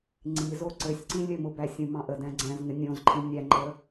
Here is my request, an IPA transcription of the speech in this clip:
ŋ͡ǀ i z o ǀ ɘ sʲ ǀ ĩ lʲ ɘ m ʊ b æ sʲ ũ m ɑ̃ ʔ ə d æ̃ ɡ͡ǀ æ̃ z ŋ ɘ nʲ õ z ǃʰ ĩ nʲ æ ŋ͡ǃ ə

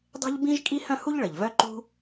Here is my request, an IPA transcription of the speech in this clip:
dˤ e̤˥ ʎ b ĩ˥ ʒ kʼ i˥ h œ̃˥ h u˥ ʎ ɭ ə˩ ʎ v œ˥ ǃ ṳ˥

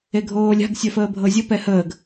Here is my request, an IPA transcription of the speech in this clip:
e ɡʱ oː lʲ a̤ ɡ sʲ œ f əː bʱ ɤ zʲ ə p ɛ h əː ɡ

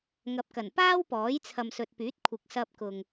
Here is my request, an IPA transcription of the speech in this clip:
ŋ ɐ˨ p̚ k ɐ˨˩ n p aː˥ w p ɔː˨˥ j t͡sʰ ɐ˨ m s ɵ˨ t̚ p yː˨˥ t̚ kʷʰ ɪ˨ k̚ s ɐ˧ p̚ k ʊ˨ ŋ

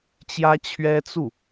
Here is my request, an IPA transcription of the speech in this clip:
t͡ɕ j ä˥ t͡ɕʰ ɥ ɛ˥ t͡s u˥˩

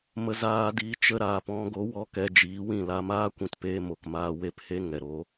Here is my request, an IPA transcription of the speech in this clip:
m ə˧ z aː˧ d i˨˦ t͡ʃ ə˦ ɾ aː˧ p ɔ̃˦ ɡ o˨˦ w ɔ˧ k ɛ˧ d͡ʒ iː˨˦ w ĩ˦˨ l a˧ m aː˦ kʷ ĩ˧ t p eː˧ m o˨ k m aː˧ w e˦ p h e˦ ŋ ɛ˨ ɾ oː˧

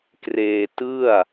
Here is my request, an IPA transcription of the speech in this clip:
k r eː˧ t ɯ˥˩ a̯

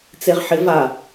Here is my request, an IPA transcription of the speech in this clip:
t͡s e ʁ ħ ɪ v a

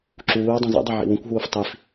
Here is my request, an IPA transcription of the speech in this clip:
ǁ uː y̯ dˤ ũ z ḛ dˤ e ʕ ḭ w ũ kʷ ɦ uː f tˤ i f

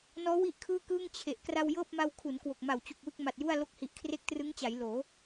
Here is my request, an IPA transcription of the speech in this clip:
n ɔː˦˥ w i˥˩ ʔ kʰ ɯː˥˩ k ɯː˥˩ ŋ t͡ɕʰ e˨˩ ʔ k r a˧ w j ɤː˥˩ p̚ m a˧ w kʰ u˩˦ n k w o˨˩ k̚ m a˨˩ w t͡ɕ u˨˩ k̚ w ɯ˥˩ k̚ m a˨˩ t̚ j u˥˩ a̯ l o˦˥ k̚ h i˨˩ ʔ kʰ r e˦˥ k̚ t r ɯ˦˥ ŋ t͡ɕ a˩˦ j l oː˩˦

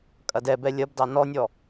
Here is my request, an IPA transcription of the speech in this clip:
kʼ ɐ d ɛ b ɛ lʲ ɐ b d ɑ n ɔ nʲ ɔ

